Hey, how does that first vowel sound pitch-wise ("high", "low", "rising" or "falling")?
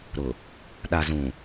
low